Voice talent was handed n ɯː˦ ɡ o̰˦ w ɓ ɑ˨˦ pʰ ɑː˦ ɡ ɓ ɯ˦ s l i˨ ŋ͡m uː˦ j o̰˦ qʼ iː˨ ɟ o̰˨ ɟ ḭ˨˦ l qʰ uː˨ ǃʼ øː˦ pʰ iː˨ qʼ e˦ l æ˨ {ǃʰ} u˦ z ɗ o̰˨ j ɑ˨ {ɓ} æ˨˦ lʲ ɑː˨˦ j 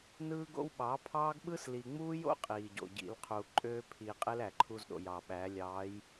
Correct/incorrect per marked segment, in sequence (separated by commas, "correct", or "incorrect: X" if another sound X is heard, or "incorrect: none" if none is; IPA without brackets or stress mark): correct, correct